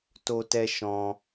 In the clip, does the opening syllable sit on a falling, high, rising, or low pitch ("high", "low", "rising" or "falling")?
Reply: high